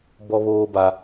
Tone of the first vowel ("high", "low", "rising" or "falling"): high